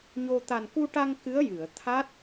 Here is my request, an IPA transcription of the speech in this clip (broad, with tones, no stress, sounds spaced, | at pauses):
ɲ o˧ t̪ a˨˩ n k u˧ ʈ a˧ ŋ k ɨ˧˥ ə̯ j ɨ˨˩˨ ə̯ t̪ʰ a˦˥ t̚